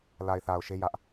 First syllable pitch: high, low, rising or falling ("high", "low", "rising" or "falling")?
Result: low